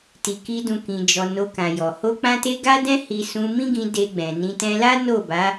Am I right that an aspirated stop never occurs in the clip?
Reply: yes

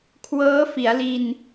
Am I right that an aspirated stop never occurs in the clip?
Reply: no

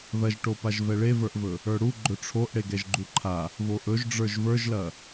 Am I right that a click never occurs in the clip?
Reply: no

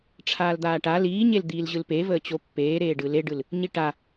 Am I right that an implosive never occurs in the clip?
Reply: yes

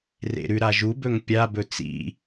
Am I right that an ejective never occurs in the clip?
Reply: yes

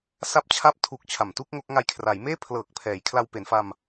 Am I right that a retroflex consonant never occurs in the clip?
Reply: yes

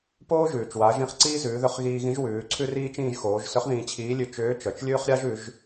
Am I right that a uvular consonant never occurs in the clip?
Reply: no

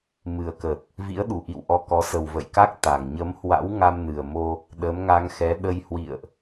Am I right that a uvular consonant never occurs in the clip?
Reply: yes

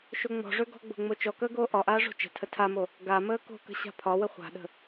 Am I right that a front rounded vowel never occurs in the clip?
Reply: no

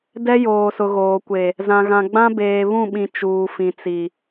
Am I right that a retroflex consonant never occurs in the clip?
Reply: yes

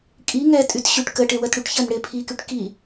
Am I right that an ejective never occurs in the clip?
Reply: no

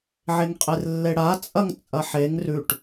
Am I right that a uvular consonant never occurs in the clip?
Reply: no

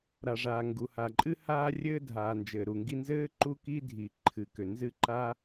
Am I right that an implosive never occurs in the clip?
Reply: yes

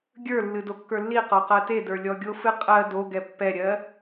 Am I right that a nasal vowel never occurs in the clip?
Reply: yes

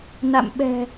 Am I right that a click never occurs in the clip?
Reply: yes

